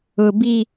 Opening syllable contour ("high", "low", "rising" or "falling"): low